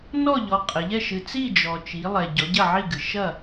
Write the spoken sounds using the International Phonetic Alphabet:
n ɔ˥˨ ʎ ɔ˨˦ qʼ ɘ˨˦ ʎ ɛ˥˨ ʃ ɨ˨ t͡s i˥˨ d͡ʒ ɔ˨ t͡ʃ i˨˦ lˠ ɛ˨ ɟ ɔ˨˦ ɟ ɐ˥˨ ʕ i˥˨ ɡ ɨ˨ ʃ ɐ˥˨

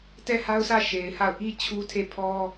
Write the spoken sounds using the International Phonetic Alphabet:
t ɛ˦˨ h a˦ ʊ̯ sʰ ä˦˨ ʃ e˨ ɪ̯ h a˦˨ ʊ̯ ʔ i˦ t͡ɕʰ u˦ tʰ e˦˨ pʰ ɔ˦

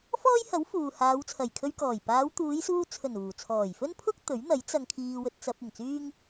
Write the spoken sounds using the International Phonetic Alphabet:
f ɔː˥ j h ɐ˨˥ w f uː˨ h aː˨˧ w t͡sʰ ɐ˨˩ j kʰ ɵ˧ ɥ k ɔː˨˩ j p aː˨˧ w t̪ uː˨˧ j s uː˧ t͡sʰ ɵ˨˩ n uː˨˩ t͡sʰ ɔː˨˩ j f ɵ˥ n pʰ ʊ˥ k̚ t̪ ɵ˨˥ ɥ n̪ ɐ˨˥ j t͡s ɐ˧ ŋ kʰ iː˧ w ɵ˧ t̚ t͡s ɐ˧ p̚ ɪ˨˩ ŋ t͡s yː˥ ŋ

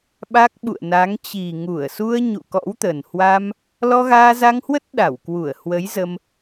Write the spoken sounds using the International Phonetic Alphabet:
ɓ a˦˥ k̚ ɓ ṵ˧˨ ə̯ n a˨˦ ŋ t͡ɕ i˨˩ ŋ u˧˩ ə̯ s u˧ ə̯ ɲ ṵ˧˨ k ɔ̰˧˥ w t̪ ə˨˩ n h w a˧ m | l ɔ˧ ɣ aː˧ z a˧ ŋ h w ə˦˥ t̚ ɗ a˧˩ w k w u˧˩ ə̯ h w ə˨˦ j z ə˧ m

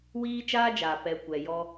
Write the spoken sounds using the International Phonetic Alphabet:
w iː˦ t͡ʃ aː˦ d͡ʒ aː˨ p ɛ˨ kʷ ɛ˨ j ɔ˧

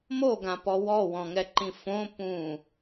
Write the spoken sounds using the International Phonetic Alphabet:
m o ɡ ã p ɔ w ɔ w ɔ̃ ŋ ɛ ǃ ĩ f õ p ũ

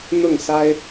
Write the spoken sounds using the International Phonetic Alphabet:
n̪ ʊ˥˨ ŋ s a˦ ɪ̯

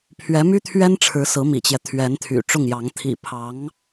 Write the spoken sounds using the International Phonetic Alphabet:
pʰ ɥ ɛ˧˥ m y˥ t̪ʰ ɥ ɛ˥ n ʈ͡ʂʰ ɻ̩˧˥ s ɹ̩˧˥ m ḭ˨˩ t͡ɕ j ɛ˦ t̪ʰ ɥ ɛ˧˥ n t̪ʰ y̰˨˩ ʈ͡ʂ ʊ˥˩ ŋ j ɑ˧˥ ŋ t̪ʰ ḭ˨˩ pʰ ɑ˧˥ ŋ

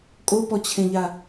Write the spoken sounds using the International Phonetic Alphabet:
kʼ o p ɔ t͡ɕʰ ẽ ʎ a

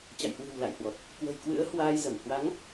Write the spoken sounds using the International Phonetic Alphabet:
t͡ɕ a̰˧˨ j h w ɨ̤˨˩ w l a̰˧˨ j h w ɔ˨˩ t̚ | k w ə̤˨˩ j k w ɨ̰˧˥ ə̯ h w aː˧ j z ə˧˩ m h w a˨˦ ŋ

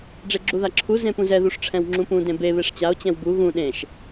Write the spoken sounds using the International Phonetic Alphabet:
ɖ͡ʐ e ɡ͡ǁ u ð a ǁʰ u z ẽ p ũ z ɛ ð u ʂ ʈ͡ʂʰ ɛ̃ w ŋ͡ǁ ũ p ũ d ẽ b e β e ʂ t͡ɕ a o̯ t͡ɕ ɛ̃ w b u ɣ ũ ɗ ẽ ʃ

